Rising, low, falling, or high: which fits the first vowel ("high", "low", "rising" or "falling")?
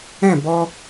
falling